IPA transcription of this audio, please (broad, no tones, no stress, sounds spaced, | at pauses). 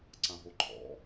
ǀ ã ɦ o ǃʰ ɔ̰